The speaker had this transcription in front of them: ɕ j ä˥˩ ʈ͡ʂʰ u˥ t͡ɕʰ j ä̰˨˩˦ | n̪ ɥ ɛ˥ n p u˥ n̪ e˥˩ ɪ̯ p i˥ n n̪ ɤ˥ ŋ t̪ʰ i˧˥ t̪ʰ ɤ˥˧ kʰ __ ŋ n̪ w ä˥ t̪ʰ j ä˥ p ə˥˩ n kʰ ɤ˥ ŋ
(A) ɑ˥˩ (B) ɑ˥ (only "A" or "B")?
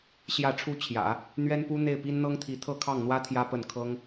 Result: A